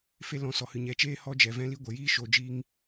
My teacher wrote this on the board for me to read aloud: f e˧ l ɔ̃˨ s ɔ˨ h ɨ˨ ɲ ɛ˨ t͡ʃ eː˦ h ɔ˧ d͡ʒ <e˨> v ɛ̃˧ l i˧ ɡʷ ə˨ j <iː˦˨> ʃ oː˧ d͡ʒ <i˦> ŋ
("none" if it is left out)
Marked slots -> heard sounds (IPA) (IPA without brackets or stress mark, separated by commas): ɛ˨, iː˦, iː˦